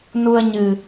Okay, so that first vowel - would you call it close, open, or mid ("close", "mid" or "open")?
close